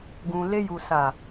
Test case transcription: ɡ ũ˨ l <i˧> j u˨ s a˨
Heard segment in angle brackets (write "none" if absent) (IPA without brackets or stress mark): e˧